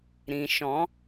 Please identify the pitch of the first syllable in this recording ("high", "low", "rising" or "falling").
low